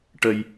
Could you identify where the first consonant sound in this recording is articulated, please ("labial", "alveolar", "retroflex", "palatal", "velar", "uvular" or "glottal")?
retroflex